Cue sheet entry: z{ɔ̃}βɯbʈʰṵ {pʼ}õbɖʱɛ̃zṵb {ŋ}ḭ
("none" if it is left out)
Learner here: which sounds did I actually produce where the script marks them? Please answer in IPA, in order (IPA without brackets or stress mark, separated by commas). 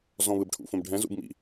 ɔ̃, f, m